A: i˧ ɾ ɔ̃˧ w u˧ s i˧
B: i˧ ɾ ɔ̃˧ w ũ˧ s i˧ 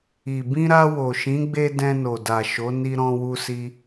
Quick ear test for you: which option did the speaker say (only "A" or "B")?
A